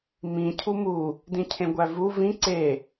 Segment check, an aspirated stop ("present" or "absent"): present